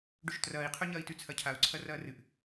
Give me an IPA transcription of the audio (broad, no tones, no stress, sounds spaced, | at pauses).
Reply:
ɖ ɵ ʃ t r ɐː i̯ qʰ ɵ ɲ ɐː i̯ t ʉ t͡sʰ ɐ cʰ a u̯ ǀʰ ɐ r ɐː r ɨ ʔ